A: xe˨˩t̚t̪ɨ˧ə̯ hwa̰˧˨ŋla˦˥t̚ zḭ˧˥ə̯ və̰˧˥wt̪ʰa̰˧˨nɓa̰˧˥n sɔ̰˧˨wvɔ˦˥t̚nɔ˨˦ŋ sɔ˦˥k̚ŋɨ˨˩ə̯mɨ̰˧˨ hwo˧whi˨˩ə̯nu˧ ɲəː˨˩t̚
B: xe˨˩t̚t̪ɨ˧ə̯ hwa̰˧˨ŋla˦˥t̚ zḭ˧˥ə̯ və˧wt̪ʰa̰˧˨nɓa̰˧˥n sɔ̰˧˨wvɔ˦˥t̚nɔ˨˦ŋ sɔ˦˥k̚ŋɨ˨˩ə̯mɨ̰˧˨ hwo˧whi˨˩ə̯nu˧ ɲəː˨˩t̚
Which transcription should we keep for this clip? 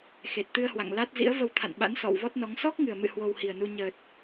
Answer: B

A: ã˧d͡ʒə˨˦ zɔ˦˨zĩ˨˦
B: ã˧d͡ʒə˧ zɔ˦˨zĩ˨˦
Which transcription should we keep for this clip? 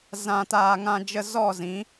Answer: B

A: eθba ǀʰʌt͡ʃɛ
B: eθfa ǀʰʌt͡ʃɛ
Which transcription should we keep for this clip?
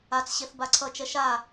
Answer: A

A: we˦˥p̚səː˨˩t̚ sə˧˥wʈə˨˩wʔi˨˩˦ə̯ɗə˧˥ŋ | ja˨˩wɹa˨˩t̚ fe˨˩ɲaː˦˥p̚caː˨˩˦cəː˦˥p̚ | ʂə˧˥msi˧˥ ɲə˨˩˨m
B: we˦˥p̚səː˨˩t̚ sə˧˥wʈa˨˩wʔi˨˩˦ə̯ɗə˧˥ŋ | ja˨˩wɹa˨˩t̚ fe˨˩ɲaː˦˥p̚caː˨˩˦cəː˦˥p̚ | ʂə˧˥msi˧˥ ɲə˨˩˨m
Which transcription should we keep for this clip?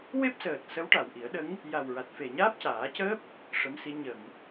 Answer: B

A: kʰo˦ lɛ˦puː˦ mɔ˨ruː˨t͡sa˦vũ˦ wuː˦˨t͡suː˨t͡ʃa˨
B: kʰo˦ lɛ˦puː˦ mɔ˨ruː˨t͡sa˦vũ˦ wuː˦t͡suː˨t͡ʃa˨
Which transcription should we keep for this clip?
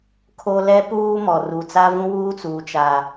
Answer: B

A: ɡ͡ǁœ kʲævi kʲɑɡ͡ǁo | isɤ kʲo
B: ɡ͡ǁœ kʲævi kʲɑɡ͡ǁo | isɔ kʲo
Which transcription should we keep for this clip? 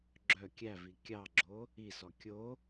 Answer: B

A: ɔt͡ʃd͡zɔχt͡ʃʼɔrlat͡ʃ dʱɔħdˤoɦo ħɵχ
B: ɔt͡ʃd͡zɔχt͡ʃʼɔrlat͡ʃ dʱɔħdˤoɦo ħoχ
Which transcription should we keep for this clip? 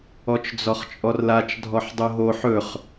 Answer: A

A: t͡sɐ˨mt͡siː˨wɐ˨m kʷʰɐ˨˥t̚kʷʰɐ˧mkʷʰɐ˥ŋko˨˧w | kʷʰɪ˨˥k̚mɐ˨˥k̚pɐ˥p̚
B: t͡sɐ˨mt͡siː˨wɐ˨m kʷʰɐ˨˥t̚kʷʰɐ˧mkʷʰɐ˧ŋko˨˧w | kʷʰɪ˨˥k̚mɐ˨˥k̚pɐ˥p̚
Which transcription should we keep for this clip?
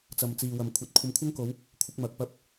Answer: A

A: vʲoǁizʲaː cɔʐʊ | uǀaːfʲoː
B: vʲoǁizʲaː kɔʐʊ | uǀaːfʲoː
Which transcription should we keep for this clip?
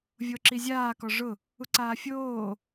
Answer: B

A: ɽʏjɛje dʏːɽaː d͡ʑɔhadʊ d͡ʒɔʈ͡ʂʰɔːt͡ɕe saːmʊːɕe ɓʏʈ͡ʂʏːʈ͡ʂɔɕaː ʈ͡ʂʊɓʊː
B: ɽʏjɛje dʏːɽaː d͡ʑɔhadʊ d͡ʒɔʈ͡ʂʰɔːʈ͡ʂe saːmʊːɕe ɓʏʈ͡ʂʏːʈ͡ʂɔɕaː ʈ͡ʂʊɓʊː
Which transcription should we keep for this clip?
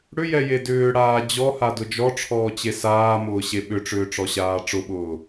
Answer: A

